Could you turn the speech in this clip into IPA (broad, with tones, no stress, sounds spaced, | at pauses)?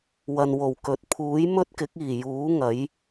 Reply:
w ɐ˨ n w o˨˩ w k ɵ˨˥ t̚ pʰ uː˨˥ j m ɵ˥ t̚ k ɪ˨˥ k̚ iː˨˩ j uː˨˥ ŋ ɐ˨˥ j